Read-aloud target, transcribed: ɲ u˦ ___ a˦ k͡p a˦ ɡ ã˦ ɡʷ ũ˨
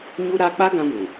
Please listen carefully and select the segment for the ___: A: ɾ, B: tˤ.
A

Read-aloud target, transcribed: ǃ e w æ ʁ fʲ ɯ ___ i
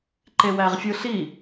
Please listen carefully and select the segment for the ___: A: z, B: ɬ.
B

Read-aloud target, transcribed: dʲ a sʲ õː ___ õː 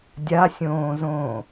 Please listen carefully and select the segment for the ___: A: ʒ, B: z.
B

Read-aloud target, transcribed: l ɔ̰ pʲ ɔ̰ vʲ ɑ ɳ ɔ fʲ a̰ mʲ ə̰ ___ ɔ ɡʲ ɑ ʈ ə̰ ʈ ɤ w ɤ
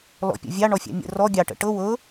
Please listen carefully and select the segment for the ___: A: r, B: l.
A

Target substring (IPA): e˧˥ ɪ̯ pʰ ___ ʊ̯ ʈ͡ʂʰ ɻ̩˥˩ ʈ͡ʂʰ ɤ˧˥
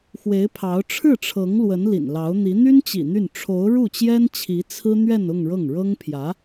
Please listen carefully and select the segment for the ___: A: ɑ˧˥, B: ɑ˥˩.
A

